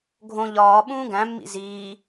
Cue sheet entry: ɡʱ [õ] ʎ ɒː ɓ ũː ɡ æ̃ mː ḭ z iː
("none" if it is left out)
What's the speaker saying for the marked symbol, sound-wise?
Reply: õ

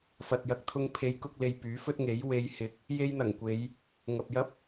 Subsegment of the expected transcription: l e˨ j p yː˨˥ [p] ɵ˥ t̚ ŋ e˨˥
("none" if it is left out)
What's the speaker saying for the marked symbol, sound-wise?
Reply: f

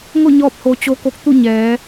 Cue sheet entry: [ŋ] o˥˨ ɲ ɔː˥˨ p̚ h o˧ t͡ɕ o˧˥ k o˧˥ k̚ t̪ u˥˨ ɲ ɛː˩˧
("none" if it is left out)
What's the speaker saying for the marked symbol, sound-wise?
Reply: ŋ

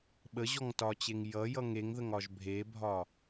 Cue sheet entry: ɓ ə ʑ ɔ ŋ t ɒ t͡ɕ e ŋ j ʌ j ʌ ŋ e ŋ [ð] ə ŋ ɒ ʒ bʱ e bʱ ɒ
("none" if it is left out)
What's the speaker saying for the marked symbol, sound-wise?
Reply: ð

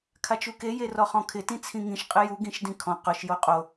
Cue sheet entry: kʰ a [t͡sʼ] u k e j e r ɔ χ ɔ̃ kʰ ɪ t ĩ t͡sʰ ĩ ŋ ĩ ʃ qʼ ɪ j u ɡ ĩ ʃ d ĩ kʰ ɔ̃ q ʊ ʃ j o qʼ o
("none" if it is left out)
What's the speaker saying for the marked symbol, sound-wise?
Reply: t͡ʃ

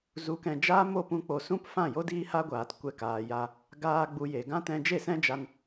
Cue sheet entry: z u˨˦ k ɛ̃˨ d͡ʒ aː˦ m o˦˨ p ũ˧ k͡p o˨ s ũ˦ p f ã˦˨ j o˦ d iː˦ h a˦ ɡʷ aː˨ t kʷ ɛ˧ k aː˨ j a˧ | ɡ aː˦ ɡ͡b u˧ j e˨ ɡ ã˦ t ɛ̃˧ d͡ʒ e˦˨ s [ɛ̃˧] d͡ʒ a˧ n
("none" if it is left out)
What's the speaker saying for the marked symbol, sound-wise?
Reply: ɛ̃˦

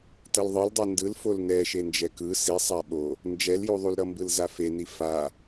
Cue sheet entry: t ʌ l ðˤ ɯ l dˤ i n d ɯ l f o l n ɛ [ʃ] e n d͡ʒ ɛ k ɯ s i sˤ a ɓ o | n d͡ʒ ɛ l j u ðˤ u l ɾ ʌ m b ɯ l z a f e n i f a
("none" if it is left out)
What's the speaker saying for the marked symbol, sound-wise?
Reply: ʃ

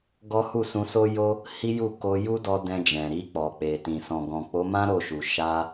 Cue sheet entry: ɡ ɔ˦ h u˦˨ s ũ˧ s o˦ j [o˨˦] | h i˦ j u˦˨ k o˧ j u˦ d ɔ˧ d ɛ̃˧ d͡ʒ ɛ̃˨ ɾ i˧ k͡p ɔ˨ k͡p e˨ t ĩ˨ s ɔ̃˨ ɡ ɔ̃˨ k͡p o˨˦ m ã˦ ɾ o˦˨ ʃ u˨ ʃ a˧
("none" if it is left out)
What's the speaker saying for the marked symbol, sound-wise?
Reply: o˦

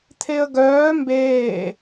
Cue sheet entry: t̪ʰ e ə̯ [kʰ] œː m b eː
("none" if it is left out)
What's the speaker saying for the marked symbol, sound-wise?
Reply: ɡ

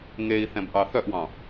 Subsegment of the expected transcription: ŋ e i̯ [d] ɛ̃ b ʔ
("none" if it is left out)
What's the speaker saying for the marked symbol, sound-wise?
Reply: θ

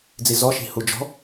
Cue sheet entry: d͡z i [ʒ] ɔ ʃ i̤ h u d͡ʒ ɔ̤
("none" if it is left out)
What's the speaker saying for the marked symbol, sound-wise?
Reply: z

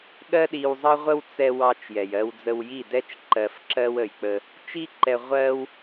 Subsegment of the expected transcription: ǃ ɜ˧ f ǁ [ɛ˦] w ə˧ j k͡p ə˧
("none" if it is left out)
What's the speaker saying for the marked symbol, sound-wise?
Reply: ɜ˦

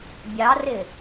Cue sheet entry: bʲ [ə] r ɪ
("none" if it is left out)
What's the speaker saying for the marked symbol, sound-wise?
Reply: ɑ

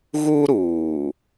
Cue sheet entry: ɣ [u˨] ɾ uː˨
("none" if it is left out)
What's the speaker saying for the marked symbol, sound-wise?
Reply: u˦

